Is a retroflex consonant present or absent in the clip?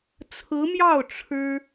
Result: present